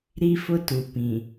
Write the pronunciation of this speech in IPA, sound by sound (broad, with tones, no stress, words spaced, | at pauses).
ɾi˦ fʊ˦tu˨ pĩ˨